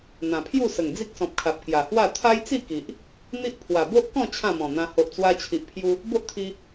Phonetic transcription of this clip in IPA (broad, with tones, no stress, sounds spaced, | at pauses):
n̪ ã˨˩ pʰ j u˥˧ s ə˨˩ ŋ d͡z i˦ k̚ s ɔ̃˨ p̚ kʰ a˨ p̚ k j a˨˩ h w a˥˧ t̪ʰ a˦ j t͡s i˥˧ k i˨ ʔ | n̪ i˦ ʔ pʰ w a˨˩ b o˦ ʔ k ɔ̃˥˧ t͡ɕʰ ã˥˧ m ɔ̃˨˩ n̪ ã˧ h o˨ ʔ t͡s w a˧ t͡ɕʰ i˨ ʔ pʰ j u˧ | b o˦ ʔ t̪ʰ i˧